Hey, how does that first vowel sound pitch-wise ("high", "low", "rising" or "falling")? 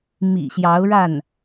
low